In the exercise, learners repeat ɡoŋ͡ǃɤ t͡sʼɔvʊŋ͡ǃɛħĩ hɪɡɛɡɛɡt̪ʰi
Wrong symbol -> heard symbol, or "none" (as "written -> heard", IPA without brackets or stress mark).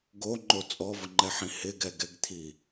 ɤ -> o